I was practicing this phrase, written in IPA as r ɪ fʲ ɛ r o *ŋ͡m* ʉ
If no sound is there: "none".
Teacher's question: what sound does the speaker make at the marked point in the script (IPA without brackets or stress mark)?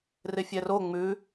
ŋ͡m